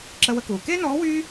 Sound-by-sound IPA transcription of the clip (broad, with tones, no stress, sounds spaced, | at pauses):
ǁ ə˧ w ə˧ k uː˩ k eː˥ n ɔː˧˥ w yː˥